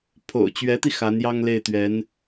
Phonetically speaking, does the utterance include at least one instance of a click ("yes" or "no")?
no